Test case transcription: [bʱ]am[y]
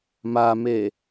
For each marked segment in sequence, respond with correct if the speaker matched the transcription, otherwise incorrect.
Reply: incorrect: m, incorrect: e

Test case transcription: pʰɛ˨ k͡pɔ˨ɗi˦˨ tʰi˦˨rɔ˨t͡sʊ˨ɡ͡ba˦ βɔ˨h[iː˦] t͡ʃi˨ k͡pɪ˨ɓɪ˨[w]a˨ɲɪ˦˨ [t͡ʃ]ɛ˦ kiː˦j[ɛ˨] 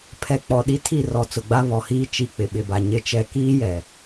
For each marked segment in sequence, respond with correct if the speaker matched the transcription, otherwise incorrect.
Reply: correct, incorrect: b, correct, correct

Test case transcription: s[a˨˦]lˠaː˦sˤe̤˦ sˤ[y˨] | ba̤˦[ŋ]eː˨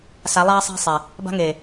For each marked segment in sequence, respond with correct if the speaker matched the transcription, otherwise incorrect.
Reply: correct, incorrect: e˨, correct

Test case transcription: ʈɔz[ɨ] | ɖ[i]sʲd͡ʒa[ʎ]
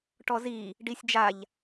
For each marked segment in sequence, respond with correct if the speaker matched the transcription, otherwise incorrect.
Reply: incorrect: i, correct, correct

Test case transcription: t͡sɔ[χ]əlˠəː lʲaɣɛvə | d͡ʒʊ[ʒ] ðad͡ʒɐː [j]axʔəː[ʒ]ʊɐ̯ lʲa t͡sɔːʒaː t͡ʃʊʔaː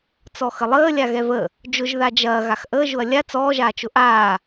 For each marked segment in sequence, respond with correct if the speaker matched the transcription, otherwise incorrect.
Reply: incorrect: x, correct, incorrect: ɣ, correct

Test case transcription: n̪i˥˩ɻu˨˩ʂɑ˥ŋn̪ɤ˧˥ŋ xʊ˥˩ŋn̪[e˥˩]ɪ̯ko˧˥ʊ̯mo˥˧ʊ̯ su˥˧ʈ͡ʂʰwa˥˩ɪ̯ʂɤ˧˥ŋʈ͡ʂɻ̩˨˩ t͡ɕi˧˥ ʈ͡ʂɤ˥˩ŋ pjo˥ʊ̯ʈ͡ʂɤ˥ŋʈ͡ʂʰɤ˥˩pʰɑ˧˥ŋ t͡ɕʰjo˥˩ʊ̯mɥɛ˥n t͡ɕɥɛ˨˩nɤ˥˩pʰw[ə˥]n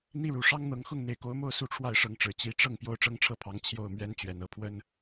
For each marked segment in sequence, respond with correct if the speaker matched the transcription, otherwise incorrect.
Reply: incorrect: e˨˩, correct

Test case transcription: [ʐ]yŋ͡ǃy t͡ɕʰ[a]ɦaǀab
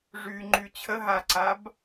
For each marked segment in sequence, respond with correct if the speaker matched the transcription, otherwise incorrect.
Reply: correct, incorrect: ə

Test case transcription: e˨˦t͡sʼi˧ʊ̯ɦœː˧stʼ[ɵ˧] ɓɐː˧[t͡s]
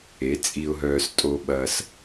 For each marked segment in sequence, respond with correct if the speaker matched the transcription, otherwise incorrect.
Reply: incorrect: o˧, incorrect: s

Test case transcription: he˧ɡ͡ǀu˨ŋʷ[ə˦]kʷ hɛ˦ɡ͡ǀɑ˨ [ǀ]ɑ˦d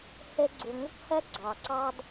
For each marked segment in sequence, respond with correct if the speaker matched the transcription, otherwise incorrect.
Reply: correct, correct

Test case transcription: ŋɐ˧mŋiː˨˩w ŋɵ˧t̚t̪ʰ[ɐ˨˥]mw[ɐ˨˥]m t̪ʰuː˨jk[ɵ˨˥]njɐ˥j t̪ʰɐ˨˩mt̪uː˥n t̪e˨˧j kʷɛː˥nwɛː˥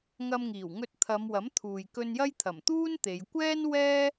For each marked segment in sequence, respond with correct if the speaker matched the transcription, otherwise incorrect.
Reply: incorrect: ɐ˨˧, correct, incorrect: ɵ˧

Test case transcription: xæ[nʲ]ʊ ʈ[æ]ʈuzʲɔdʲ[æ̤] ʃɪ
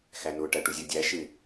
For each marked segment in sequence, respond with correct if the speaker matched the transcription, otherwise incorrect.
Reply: incorrect: n, correct, incorrect: æ

